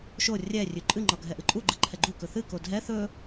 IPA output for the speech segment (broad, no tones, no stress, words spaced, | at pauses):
ʃo rʲɛrʲʉ ǃʼɨŋ͡ǃɒ ɡʱɛʔɨǃʼuɡ͡ǃɨ ǃʰɛɡ͡ǃukɵ θɨ kodʱɛ θɵ